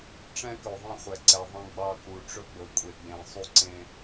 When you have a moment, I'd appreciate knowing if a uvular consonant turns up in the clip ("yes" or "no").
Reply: yes